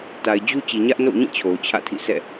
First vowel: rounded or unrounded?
unrounded